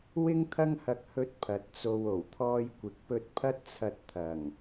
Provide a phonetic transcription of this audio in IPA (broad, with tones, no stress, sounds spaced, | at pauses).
w ɪ˥ ŋ t̪ʰ ɐ˥ ŋ h ɐ˧ k̚ h ɵ˧ t̚ pʰ ɐ˨ t̚ t͡s o˧ w o˨˩ w t̪ʰ ɔː˧ j kʷ ɪ˨ k̚ p ɵ˧ t̚ pʰ ɐ˥ t̚ t͡sʰ ɐ˧ t̚ t̪ʰ ɐ˨˩ ŋ